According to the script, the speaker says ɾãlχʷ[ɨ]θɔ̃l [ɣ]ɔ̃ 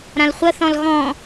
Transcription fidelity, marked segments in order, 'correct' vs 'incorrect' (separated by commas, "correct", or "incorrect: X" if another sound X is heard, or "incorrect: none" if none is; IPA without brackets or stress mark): incorrect: ə, correct